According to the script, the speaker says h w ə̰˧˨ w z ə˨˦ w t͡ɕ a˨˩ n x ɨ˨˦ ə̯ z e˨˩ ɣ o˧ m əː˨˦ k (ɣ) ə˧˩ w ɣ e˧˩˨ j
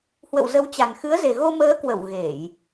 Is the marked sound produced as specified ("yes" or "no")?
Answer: no